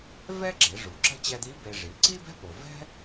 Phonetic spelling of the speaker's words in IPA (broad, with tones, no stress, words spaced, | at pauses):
vɛ˥ɡ͡ǁe˩˧ ʐu˩ǁə̤˥ t͡ɕɛ˧d̪i˧˥ be˧ ʐi˩˧ǀi˥ bɛ̤˥po˩vɛ̤˥